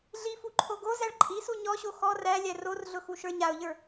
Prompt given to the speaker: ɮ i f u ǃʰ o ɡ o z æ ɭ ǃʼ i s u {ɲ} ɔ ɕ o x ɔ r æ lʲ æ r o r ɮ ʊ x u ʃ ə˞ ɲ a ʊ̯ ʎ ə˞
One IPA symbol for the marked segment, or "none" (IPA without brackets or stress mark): ɲ